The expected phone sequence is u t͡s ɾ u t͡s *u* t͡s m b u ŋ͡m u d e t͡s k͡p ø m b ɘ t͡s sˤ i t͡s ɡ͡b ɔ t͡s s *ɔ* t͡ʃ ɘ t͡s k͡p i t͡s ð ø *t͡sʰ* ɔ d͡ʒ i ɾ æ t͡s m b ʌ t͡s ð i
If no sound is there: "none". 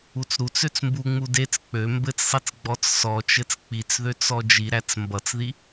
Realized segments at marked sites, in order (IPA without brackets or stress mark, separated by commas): ø, ɔ, t͡s